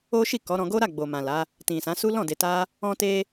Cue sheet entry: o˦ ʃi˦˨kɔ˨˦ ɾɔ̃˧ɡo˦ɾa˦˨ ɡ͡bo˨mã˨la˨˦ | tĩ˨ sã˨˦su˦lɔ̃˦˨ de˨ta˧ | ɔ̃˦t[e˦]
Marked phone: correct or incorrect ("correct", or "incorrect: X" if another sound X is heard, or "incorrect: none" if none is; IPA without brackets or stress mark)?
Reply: correct